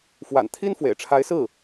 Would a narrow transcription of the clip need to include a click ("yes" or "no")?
no